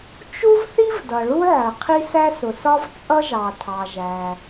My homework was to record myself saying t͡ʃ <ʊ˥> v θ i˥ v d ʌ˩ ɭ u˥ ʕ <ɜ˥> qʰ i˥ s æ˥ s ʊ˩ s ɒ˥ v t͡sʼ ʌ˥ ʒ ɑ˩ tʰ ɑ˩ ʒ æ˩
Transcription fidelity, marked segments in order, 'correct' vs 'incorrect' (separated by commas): incorrect, incorrect